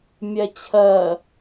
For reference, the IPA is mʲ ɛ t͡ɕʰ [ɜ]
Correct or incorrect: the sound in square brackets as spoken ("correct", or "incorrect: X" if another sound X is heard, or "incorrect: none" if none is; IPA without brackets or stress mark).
correct